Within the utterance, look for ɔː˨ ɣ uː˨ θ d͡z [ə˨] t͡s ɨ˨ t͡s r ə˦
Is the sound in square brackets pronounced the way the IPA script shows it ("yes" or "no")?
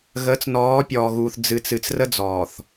no